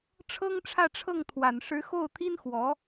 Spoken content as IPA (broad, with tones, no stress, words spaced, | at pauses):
ʈ͡ʂʰɤ˥ŋʈ͡ʂʰä˥˧ʈ͡ʂʰɤ˥˩ŋ t̪ʰwa˨˩nʂɻ̩˧˥xo˥˩ʊ̯t̪ʰi˥n xwɔ˧˥